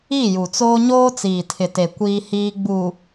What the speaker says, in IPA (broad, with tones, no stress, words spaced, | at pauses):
i˦˨ju˨t͡soː˦ ɲoː˦t͡siː˨tʰɪ˨te˨ kʷiː˦hiː˦ ɡ͡bu˨